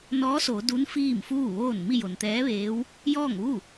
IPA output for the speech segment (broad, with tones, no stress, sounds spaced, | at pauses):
n ɔː˧˥ s o˩˧ d u˧˥ n f iː˥˨ m f uː˥˨ ʋ oː˥˨ n m i˥˨ j o˩ n t̪ ɛː˧˥ ʋ eː˧˥ w | j ɔː˥˨ ŋ ʋ u˥˨